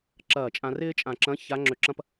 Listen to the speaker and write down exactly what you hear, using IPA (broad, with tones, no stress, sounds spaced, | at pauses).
ǁ ɐː˧˩ t͡ʃʼ ã˧ r ɪː˥ t͡ʃʼ ã˧˩ ǁ ɐ̃˧˥ ç a˧˥ ŋ͡ǁ ø˧ ǁ ɐ̃˥ p